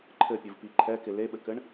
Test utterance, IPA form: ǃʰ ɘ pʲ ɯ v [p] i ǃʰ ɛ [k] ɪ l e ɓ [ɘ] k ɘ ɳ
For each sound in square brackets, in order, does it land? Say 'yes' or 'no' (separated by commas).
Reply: yes, yes, yes